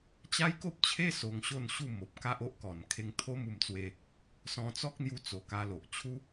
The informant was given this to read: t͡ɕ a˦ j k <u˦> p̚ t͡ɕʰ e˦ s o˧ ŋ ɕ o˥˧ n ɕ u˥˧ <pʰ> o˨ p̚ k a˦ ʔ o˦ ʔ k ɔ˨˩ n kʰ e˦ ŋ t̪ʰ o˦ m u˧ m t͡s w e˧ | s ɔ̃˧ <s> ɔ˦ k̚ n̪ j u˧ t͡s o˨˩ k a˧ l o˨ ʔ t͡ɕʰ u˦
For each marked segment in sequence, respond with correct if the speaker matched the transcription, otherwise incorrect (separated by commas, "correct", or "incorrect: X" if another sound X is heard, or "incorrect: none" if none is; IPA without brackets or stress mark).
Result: incorrect: o˦, incorrect: m, incorrect: t͡s